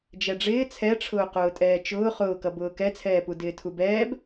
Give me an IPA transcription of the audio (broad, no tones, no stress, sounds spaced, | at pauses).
d͡ʒ ɛ ɖ͡ʐ ɪː t͡sʰ ɛ ʈ͡ʂʰ ʊː q ʊː tʼ ɛː t͡ʃ ʊː χ ʊː k ʌ b ʊː k ɛ t͡sʰ ɛː p u d ɪː tʰ u b ɛː b